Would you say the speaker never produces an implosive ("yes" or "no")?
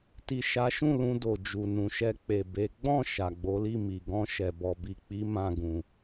yes